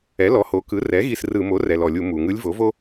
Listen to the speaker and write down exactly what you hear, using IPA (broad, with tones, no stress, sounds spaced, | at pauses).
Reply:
ɛ˩˥ l ɔ˩˥ h o˩˥ k ɯ˩˥ r ɛ˩˥ ɣ i˦˨ s r ɯ˧˩˧ m o˩˥ r ɛ˩ l ɔ˩ lʲ u˧˩˧ m u˩ ŋ ɯ˧˥ lʲ v o˩˥ v o˥